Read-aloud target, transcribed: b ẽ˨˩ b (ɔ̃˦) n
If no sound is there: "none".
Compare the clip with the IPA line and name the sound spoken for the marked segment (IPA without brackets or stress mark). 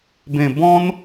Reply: ɔ̃˦